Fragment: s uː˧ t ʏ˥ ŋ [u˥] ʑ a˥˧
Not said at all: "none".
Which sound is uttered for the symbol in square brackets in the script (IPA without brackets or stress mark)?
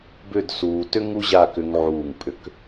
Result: u˥